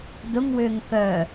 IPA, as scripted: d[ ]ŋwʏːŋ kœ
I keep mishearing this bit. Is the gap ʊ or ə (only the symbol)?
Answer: ʊ